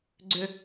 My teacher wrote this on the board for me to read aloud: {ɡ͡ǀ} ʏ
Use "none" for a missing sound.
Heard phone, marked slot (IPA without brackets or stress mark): ɡ͡ǀ